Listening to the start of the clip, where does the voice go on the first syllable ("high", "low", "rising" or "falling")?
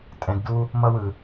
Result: low